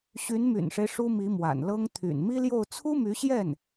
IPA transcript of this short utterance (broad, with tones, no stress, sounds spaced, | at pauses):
ɕ y˧˥ n m y̰˨˩ n ʂ e˦ ɪ̯ ʂ u˥ m i˧˥ m w a̰˨˩ n l ɤ˥ ŋ t̪ʰ y̰˨˩ n m i˥ l j o˥˩ ʊ̯ t͡sʰ u˥ m y˧˥ ɕ j ɛ˥˩ n